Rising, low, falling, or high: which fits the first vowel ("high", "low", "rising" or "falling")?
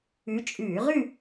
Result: rising